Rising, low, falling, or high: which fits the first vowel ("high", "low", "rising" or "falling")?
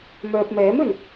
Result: low